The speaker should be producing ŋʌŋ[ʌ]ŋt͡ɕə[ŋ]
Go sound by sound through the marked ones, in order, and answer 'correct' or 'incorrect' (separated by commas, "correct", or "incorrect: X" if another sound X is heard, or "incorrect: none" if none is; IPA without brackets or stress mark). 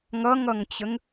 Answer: correct, correct